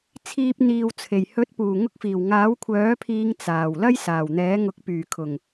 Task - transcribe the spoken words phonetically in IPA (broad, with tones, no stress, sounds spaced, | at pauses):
t͡sʰ iː˧ p̚ n̪ iː˨ w t͡sʰ e˨˩ j h ɵ˨˥ t̚ p uː˨˩ ŋ ʊ˧ k̚ f iː˨˩ w ŋ aː˨˥ w kʷʰ œː˨˥ pʰ iː˨˧ ŋ t͡s aː˨˩ w l ɐ˥ j s aː˨˩ w n̪ ɛː˨˥ ŋ ʊ˨˥ k̚ p yː˨˩ kʰ ʊ˨˩ ŋ